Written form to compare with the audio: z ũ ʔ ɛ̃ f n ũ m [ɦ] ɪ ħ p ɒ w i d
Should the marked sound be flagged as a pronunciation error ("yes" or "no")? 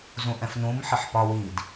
yes